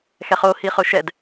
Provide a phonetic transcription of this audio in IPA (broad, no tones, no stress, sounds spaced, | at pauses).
x ɛ χ o h i χ ʊ ʃ ɛ d